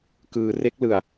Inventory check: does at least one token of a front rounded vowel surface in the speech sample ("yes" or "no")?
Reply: no